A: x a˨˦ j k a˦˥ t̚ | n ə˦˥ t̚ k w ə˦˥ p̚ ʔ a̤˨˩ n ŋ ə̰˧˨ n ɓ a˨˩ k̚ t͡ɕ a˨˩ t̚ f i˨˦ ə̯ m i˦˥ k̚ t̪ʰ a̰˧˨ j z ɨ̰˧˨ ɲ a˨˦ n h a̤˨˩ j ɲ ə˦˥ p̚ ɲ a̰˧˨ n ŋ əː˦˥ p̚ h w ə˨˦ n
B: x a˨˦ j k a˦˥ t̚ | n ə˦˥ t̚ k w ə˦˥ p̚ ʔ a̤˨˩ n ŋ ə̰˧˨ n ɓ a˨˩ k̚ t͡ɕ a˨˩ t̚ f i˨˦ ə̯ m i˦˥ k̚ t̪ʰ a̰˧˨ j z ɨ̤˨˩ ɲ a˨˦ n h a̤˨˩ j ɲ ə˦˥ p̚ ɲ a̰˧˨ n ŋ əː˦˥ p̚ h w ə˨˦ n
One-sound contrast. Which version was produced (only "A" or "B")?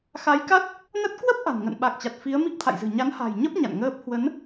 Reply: B